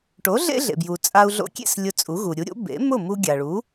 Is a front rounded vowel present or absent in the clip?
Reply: absent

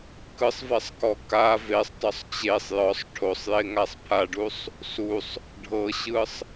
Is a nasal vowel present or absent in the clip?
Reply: absent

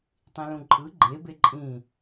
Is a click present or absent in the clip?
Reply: present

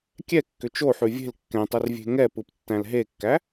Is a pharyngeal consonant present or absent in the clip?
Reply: present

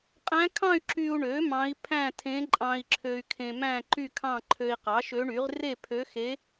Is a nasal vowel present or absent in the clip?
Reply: present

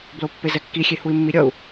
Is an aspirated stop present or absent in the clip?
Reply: absent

